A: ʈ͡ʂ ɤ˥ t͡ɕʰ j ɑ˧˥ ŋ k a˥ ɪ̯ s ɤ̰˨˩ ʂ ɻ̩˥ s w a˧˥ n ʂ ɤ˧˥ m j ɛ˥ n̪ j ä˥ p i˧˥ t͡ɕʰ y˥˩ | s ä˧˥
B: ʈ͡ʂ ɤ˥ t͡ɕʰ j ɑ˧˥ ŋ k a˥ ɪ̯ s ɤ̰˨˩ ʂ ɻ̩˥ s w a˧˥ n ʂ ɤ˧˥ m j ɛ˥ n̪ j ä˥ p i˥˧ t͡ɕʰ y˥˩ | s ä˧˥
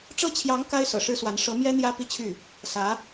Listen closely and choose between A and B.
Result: B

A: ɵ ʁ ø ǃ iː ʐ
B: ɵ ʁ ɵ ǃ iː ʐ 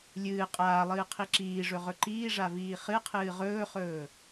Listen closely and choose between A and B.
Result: B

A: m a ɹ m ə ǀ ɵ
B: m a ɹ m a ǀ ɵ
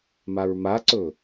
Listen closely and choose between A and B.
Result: B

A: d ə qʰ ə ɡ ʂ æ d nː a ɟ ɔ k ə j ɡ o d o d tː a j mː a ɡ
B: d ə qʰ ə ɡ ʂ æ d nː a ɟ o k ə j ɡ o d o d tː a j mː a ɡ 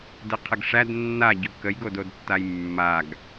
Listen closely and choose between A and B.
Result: B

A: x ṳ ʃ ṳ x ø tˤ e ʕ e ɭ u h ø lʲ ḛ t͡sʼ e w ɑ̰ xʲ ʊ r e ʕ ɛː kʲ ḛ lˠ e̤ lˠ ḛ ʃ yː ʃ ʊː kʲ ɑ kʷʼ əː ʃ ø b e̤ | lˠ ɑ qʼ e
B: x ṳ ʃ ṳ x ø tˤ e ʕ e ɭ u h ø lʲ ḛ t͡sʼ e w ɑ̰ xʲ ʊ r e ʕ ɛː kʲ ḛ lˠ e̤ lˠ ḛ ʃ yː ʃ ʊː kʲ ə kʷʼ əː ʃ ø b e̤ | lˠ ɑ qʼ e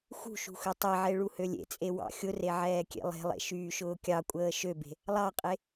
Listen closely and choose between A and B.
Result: A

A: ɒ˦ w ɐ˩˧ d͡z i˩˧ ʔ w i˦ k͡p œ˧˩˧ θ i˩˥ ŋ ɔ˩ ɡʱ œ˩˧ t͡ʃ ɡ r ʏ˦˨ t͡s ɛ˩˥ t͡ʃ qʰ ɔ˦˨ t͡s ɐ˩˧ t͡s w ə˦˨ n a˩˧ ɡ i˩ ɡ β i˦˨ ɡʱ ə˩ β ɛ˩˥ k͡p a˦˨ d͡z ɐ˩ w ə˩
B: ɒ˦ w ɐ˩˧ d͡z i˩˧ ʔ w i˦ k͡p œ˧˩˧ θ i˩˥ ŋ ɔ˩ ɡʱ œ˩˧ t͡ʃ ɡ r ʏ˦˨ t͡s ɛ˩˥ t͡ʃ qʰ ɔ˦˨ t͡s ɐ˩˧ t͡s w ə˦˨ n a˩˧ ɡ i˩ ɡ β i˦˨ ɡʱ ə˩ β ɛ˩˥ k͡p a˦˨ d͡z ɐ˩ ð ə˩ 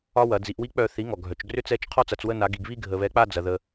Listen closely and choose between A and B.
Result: B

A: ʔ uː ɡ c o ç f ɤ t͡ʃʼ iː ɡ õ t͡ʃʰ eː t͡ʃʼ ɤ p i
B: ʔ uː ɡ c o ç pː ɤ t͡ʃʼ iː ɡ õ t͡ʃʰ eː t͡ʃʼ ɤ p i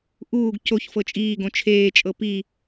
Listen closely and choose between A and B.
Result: A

